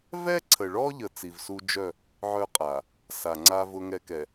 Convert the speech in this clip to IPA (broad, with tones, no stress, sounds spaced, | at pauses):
v ɛ˦ ǀʰ ə˨ ɭ ɔ˦ ʎ ə˨ t͡s i˨ v s u˦ d͡ʒ œ˦˨ | ʕ œ˦ qʼ a˨ | s a˨ ŋ͡ǀ a˦ v ʊ˦ ŋ ɛ˦ k ɛ˨